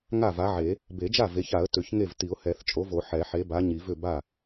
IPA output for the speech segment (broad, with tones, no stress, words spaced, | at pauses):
ŋa˥˩va˨˥ʕe˨˩˦ | be˨˩˦d͡ʒa˥˩ ve˨˥ça˨˩˦ə̯ tʏ˨˩˦çŋe˥˩v ti˨˩˦ʊ̯hɛ˨˩˦θt͡ʃʼo˨˥vo˨˩˦ ħɛ˨˩˦ħe˨˥ba˨˥ ɲi˨˩˦vʏ˥˩ ba˥˩